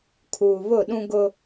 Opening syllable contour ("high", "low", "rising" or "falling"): low